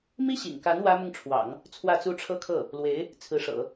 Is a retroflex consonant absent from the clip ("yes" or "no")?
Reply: no